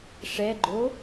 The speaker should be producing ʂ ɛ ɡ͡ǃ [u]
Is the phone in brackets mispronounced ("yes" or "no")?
yes